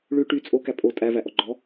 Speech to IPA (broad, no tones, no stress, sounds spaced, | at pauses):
ɭ ʉ ʈ y t͡sʼ o k æ pʼ o tʼ æ v æ ʔ ɔ ɡ͡ǃ ɔ